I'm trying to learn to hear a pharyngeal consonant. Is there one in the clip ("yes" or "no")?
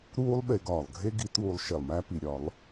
no